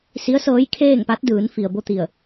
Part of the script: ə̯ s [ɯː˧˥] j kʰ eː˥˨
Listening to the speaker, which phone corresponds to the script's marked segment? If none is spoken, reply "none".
ɤː˧˥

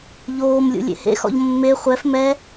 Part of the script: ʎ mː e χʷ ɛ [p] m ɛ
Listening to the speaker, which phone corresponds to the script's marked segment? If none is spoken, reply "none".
f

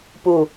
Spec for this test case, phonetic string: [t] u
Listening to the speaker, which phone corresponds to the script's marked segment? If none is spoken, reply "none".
p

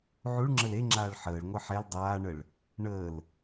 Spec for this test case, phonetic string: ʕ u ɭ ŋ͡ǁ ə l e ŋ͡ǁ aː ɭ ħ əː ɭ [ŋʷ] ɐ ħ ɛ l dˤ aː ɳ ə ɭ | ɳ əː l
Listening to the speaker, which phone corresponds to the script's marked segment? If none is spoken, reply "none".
ŋʷ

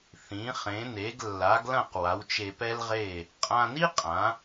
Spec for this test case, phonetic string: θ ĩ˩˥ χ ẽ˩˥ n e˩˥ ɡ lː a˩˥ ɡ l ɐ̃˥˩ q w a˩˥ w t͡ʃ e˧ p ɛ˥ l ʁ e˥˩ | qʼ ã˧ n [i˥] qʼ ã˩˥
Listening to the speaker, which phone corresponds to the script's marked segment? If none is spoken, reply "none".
i˥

